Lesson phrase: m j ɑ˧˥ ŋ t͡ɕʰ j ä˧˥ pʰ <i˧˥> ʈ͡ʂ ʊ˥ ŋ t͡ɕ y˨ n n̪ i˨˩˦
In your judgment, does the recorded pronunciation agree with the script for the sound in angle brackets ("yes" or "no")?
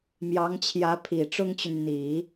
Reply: no